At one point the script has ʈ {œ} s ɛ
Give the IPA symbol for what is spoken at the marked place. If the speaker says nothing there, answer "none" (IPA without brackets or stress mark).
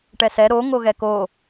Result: ɛ